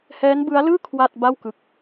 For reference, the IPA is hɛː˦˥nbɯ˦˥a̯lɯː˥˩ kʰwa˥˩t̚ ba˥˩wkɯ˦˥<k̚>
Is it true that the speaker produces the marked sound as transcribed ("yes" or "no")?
yes